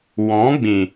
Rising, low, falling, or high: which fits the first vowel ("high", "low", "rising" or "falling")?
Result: rising